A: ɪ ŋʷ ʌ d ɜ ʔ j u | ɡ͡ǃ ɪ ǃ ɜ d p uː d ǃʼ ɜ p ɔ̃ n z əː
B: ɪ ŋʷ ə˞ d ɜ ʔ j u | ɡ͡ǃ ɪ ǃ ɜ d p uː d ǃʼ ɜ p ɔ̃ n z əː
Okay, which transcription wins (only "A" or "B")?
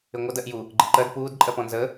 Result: A